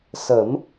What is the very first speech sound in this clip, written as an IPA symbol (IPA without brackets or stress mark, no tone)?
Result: s